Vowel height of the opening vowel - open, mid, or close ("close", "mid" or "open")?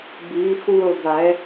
close